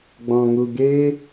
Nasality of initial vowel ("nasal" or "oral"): nasal